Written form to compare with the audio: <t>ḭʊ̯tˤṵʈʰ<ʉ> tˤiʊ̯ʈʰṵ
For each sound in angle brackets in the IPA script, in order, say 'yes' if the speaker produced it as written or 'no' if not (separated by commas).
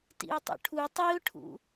yes, no